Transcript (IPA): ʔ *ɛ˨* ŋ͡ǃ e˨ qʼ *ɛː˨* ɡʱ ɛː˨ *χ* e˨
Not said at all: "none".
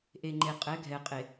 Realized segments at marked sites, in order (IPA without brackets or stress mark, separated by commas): e˨, ɛː˨˦, qʼ